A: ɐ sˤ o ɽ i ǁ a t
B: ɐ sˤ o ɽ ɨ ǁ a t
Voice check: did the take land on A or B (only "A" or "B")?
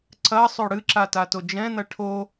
B